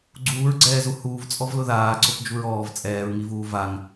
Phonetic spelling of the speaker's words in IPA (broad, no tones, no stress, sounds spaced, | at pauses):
ɡ͡ǀ uː ɹ ɡ͡ǀ ɛː z u h uː v t͡sʼ ɔ v l ʊ ð aː ǀ ʊ p d͡ʒ u ɹ ɔː v t͡sʼ ɛː ɹ ŋ i v uː v a ŋ